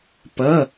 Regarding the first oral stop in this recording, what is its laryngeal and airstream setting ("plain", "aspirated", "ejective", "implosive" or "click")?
plain